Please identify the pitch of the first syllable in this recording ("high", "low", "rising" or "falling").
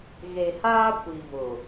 low